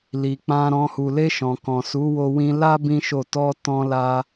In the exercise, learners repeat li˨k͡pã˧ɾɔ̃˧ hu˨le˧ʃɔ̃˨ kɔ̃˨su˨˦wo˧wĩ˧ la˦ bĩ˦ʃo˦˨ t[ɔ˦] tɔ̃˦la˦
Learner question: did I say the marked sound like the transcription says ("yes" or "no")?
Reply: no